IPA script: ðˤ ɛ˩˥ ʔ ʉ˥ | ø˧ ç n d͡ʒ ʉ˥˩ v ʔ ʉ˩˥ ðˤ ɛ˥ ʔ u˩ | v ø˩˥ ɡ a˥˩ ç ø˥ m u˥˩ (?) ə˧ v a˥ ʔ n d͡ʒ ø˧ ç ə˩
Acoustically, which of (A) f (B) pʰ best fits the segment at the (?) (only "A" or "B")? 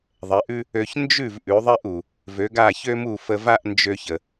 A